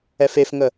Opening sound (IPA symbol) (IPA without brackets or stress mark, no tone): ɛ